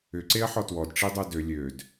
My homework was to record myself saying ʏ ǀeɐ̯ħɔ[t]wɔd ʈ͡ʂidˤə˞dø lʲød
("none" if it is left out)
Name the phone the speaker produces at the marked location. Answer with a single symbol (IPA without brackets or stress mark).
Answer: t